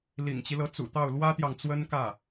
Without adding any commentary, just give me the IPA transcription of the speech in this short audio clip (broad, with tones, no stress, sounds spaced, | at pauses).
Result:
l ḭ˨˩ ŋ t͡ɕ i˦ l ɤ˧˥ t͡s ṵ˨˩ t̪ ɑ˥˩ ʊ̯ l w ä˥ t̪ j ɑ˨ ŋ t͡s w ə˥ n k ä˥˩